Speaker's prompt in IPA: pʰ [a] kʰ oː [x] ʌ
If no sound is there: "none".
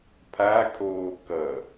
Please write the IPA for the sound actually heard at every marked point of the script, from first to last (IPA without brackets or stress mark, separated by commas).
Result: a, k